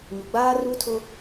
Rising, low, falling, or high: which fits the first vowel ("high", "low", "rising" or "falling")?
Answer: low